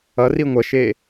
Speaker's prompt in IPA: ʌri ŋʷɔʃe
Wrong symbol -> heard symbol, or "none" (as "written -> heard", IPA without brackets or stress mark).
ɔ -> ʌ